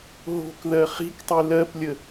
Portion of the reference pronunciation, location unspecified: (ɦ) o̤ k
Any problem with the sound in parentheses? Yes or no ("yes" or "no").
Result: no